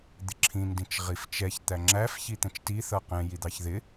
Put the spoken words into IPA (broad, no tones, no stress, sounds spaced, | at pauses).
d̪ ɪ ǁʰ ĩ n d ĩ t͡ʃ ʁ i f t͡ʃ ɛ ç t̪ æ ŋ͡ǁ æ f ç i t̪ ɛ̃ t͡ʃ t i θ ʌ q ɛ̃ j i d̪ ɑ ç ð ɪ